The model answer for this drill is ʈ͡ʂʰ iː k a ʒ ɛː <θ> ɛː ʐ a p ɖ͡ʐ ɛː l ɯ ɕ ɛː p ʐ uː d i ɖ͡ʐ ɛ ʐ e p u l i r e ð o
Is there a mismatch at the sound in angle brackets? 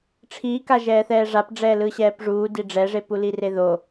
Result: no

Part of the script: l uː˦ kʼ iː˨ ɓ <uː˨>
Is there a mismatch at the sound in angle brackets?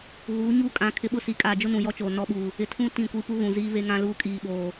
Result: yes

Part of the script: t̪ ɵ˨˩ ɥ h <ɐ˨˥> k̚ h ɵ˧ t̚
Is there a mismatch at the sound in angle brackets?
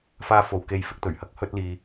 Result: yes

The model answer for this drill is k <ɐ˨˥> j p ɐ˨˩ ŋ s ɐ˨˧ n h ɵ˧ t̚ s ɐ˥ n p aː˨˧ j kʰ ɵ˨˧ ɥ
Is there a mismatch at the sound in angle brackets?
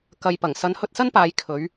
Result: yes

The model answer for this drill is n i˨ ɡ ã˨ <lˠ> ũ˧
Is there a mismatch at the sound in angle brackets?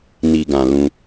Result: yes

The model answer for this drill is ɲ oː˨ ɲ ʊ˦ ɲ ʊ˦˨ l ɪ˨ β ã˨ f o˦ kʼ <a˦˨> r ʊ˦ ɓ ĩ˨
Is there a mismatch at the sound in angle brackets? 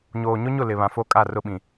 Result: no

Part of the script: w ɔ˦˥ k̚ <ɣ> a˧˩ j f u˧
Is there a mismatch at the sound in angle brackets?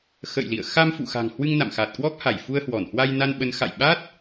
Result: yes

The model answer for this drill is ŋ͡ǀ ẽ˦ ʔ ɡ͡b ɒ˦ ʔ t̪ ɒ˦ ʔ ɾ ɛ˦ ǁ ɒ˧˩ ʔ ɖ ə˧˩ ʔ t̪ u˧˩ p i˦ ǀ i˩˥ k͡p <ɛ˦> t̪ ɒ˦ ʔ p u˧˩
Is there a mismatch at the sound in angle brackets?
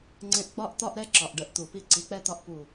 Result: no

